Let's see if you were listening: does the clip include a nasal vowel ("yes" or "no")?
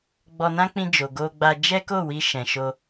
yes